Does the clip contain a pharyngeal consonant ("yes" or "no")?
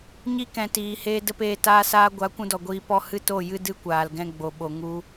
no